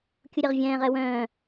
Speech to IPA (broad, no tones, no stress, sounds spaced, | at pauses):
kʲ u ɾʲ ɐ ʁ vʲ ɛ̃ː ʁ ɛ w œ̃ː